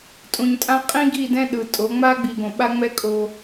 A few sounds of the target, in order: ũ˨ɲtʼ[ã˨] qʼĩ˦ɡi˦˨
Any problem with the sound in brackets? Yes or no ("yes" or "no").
yes